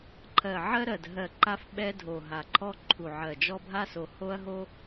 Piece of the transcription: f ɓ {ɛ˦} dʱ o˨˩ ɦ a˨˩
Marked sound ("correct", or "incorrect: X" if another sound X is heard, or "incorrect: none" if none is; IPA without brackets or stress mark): correct